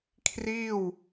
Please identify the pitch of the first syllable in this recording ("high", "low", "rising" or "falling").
falling